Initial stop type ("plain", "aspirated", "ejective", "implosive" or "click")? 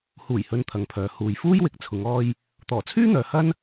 aspirated